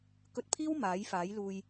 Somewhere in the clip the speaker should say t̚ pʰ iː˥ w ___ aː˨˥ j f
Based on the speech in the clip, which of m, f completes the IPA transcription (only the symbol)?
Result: m